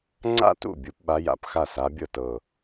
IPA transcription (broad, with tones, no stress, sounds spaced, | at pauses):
ŋ͡ǀ a̰˥˩ t ṵ˥˩ bʲ u˨˦ p ɓ a˨˦ j a̰˨˩ p x a˥˩ s a˨˦ bʲ ɤ˥˩ t ɤ˨˩